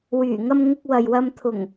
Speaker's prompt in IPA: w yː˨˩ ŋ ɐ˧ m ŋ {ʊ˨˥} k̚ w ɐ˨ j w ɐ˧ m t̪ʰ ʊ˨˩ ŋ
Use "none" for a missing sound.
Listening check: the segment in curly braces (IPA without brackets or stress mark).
ʊ˧